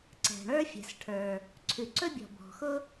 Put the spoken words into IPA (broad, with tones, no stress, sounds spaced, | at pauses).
ǀ ɛ̤˩ ɳ ə˞˥ fʲ ɛ̤˩ s ʈʰ ə˞˩ | ǀʰ ʉ˩ ǀ ɵ˥ bʲ ɔ̤˩ b ɔ̤˩ x ʊ˥